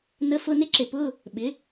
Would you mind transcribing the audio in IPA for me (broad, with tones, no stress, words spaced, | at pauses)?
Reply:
nə˧˥˧ fʊ˧˥˧nɪ˥ ǁɪ˨pʊ˧˥˧ | ɓɪ˩˥